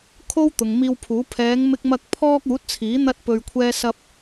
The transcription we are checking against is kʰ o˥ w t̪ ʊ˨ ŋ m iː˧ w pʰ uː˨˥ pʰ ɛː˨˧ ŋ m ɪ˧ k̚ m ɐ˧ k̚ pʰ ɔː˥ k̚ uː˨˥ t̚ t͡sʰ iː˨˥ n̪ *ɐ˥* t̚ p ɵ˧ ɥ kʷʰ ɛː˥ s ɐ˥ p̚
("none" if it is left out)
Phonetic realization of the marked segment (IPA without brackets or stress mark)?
ɐ˥